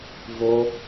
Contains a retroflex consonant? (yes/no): no